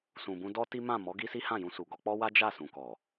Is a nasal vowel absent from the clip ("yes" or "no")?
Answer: no